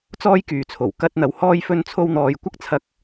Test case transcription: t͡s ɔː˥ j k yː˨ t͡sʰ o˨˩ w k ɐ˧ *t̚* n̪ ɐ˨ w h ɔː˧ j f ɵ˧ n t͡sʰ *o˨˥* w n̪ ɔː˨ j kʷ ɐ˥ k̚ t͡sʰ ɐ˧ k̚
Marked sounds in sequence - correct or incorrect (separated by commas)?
correct, incorrect